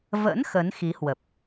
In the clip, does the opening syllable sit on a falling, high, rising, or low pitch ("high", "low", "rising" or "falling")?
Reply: rising